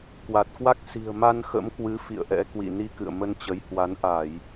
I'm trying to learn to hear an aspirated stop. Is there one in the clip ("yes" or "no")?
no